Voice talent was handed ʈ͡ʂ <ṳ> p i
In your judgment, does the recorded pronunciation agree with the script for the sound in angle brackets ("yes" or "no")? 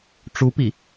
no